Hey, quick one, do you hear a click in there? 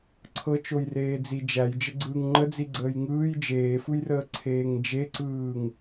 yes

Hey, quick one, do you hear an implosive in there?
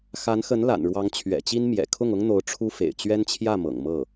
no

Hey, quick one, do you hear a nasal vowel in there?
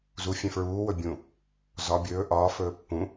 yes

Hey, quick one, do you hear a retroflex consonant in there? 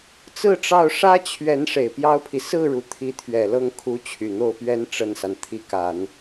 yes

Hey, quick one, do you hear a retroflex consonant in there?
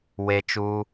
no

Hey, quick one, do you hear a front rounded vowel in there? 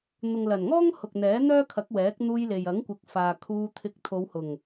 yes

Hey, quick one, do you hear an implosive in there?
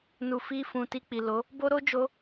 no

